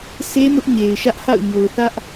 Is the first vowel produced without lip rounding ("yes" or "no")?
yes